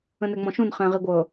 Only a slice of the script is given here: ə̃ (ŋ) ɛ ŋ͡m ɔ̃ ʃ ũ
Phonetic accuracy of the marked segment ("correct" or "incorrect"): incorrect